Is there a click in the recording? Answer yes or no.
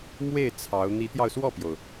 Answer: no